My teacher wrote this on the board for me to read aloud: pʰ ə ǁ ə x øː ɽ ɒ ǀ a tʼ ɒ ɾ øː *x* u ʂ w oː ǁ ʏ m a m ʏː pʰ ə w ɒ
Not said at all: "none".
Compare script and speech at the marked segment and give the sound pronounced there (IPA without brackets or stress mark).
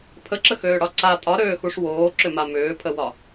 x